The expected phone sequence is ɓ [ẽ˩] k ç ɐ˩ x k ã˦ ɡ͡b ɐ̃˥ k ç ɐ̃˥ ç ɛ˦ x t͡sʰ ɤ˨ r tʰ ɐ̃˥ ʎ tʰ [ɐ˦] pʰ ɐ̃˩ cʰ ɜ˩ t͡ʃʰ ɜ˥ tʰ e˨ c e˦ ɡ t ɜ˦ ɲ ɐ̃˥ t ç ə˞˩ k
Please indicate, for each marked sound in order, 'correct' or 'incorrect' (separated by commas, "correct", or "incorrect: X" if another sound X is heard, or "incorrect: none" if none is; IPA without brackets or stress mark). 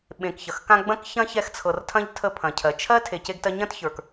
incorrect: ẽ˨, incorrect: ə˦